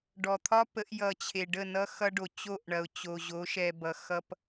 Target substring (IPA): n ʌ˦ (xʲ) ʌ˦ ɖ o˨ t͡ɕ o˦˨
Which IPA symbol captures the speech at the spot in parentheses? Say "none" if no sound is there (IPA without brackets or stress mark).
x